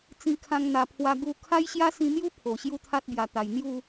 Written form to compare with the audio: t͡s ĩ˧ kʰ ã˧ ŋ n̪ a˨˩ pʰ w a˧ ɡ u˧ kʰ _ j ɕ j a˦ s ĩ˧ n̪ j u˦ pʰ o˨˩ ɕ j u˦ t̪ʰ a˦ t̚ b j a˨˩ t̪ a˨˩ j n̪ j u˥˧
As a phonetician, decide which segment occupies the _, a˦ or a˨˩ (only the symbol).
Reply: a˦